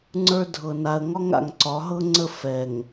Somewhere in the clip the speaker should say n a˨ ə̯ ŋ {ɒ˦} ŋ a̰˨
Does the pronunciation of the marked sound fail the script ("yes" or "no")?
no